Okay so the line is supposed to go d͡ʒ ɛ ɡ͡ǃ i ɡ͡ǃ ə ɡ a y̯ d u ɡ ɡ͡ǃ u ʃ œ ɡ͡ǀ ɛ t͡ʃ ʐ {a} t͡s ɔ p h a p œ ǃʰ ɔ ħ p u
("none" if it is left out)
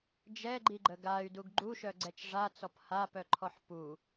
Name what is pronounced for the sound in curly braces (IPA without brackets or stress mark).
a